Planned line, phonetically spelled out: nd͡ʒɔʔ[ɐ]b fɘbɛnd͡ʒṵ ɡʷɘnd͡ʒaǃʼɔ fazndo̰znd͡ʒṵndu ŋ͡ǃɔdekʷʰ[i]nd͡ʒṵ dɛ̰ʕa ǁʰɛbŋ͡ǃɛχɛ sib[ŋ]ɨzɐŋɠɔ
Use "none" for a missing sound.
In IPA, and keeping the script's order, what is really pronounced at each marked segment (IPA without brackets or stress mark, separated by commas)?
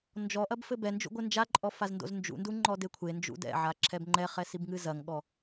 ɐ, e, ŋ